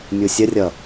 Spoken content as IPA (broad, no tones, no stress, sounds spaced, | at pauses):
mʲ u sʲ ə rʲ ʌ